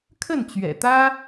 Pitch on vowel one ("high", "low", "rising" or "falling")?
falling